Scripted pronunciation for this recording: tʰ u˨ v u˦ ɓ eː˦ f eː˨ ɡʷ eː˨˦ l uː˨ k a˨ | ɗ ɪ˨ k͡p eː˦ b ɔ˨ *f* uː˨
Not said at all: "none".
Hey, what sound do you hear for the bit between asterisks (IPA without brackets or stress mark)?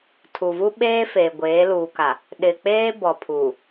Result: pʰ